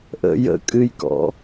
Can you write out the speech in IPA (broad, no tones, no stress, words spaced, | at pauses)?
ʔə̰ jə̰ kʼɨjkɔ̰